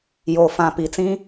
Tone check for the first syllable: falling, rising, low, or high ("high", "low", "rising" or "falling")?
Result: low